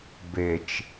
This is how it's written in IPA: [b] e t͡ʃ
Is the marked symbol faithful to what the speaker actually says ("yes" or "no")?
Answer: yes